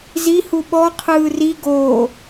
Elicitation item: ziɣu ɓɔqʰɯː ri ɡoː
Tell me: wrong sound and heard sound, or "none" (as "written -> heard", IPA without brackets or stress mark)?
ɣ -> h